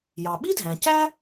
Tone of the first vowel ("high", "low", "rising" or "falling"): low